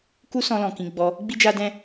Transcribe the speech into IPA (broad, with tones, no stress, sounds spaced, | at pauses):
k u˦ s ɔ̃˧ l ɔ̃˨ k ĩ˧ ɡ͡b ɔ˧ | ɡ͡b i˦ d͡ʒ a˦ d ɛ̃˦